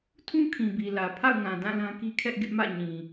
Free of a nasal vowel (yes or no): no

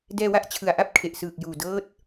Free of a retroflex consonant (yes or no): yes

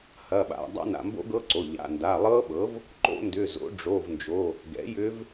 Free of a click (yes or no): no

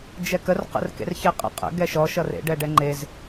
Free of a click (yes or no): no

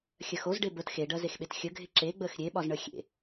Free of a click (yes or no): no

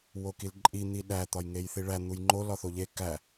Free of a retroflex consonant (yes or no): no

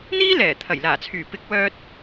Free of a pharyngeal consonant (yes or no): yes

